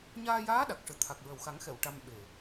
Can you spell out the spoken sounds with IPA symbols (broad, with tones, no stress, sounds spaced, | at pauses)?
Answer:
ɲ aː˧ j aː˧˥ ɗ a˨˩ k̚ ʂ ɨ˨˩ t̪ʰ a˨˩ k̚ ɹ ə˨˩ w x a˨˩˦ ŋ x ɛ˨˩˨ w ʈ a˧ m ɓ e˨˩